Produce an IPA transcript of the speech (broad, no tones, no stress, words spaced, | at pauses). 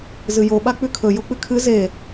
zɨjo ɓak͡pʉkʰɵ jok͡pɨkʰɨ ze